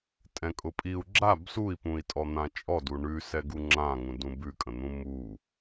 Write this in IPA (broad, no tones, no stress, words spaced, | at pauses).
tʼɛ̃kʼʊpʼiu̯ ɡ͡ǁab sui̯pũi̯tʼɔ n̪ãt͡ʃʼɔdu ɳʉ sɛɡuŋ͡ǁãŋũ dũbʉkʼə̃n̪ũ mu